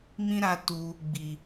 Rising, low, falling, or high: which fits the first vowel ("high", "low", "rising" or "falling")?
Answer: high